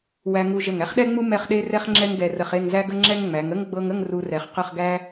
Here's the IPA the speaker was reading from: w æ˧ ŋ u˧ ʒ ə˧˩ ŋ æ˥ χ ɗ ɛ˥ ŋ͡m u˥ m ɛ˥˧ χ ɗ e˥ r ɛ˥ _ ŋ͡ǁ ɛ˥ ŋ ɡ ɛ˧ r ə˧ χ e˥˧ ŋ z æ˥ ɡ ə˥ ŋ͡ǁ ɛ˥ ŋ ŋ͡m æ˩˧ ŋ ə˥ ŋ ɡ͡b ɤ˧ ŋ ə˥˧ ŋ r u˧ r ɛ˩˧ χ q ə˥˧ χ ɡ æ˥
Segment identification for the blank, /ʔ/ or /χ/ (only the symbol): χ